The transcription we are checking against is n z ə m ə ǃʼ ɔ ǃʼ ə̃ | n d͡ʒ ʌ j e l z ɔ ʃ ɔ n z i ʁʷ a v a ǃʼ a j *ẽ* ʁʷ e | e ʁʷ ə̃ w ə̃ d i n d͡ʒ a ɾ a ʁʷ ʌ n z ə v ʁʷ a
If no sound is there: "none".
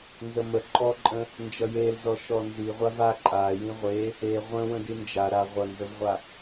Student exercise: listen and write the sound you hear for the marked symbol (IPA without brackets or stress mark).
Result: ĩ